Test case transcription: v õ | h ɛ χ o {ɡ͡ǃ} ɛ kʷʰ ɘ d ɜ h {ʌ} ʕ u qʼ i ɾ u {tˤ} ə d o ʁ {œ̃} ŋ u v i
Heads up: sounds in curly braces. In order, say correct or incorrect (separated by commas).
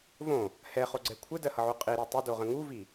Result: incorrect, correct, correct, incorrect